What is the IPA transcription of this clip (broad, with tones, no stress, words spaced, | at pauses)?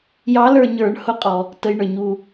jɑ˧˥lə˞˦˨ ɲə˞˧˩˧ɳhʊ˧˥qʼɔ˨˩ | tə˧˥jɳə˞˧˩˧ɲu˦˨